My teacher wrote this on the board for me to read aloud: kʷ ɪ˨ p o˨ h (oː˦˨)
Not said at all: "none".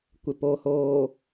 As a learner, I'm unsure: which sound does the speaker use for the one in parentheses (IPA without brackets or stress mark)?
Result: oː˨